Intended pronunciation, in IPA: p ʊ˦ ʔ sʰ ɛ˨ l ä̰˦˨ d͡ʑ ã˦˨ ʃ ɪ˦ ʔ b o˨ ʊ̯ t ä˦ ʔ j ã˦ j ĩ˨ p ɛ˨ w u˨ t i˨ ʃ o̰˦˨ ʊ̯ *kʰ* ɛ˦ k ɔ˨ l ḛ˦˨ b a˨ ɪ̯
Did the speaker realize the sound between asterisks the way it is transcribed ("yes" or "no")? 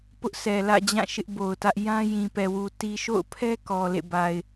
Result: no